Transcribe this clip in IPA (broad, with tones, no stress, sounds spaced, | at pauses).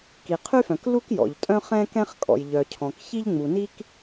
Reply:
k i˩ qʰ y˥ f œ̃˩ k l u˥ k j ɔ̰˩ ʎ tʼ œ̃˥ χ ɛ̃˥ k ɛ̃˥ χ kʼ ɔ̰˩ j ʎ œ˩ cʰ ɔ̃˩ k ç i˥ ʎ ŋ͡m u˩ n i˥ k